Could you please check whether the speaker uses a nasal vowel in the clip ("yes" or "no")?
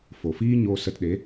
no